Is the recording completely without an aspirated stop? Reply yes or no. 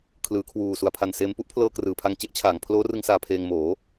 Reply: no